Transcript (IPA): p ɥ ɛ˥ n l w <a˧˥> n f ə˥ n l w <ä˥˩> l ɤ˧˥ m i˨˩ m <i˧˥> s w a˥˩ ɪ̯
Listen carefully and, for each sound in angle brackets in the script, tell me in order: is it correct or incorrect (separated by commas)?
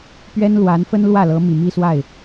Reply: correct, correct, incorrect